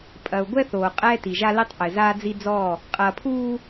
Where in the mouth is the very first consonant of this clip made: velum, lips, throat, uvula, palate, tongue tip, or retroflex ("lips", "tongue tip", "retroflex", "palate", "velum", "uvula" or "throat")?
lips